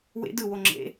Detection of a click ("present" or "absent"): present